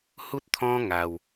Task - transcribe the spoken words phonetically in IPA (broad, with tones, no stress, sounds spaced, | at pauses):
h u˦ t̚ t̪ʰ ɔ̃˦ ŋ a˧ w